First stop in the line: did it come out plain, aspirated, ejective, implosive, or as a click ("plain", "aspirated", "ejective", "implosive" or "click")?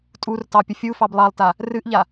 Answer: ejective